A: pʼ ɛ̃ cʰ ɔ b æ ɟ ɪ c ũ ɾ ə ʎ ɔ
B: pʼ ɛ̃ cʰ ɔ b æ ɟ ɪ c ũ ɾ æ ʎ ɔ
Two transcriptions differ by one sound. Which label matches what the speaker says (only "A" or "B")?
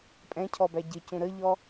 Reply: A